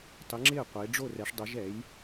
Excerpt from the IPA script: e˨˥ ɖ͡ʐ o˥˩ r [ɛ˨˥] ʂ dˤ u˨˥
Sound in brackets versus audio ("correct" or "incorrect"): correct